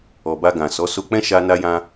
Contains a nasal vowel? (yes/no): yes